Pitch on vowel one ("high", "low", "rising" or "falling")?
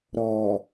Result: low